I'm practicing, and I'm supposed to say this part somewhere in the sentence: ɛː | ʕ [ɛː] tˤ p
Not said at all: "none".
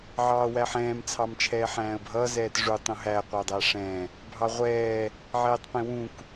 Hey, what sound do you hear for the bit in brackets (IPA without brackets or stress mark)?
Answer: ɛː